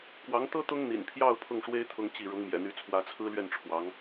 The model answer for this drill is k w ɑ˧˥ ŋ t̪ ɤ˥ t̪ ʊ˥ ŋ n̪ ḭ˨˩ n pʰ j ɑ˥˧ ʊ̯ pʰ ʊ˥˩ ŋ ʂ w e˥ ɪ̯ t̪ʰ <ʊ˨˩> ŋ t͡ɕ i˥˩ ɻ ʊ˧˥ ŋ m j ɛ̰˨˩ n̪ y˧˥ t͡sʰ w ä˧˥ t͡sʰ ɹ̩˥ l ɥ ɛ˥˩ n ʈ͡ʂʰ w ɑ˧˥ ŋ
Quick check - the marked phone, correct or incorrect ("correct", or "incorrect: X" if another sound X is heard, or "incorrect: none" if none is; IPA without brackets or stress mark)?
incorrect: ʊ˥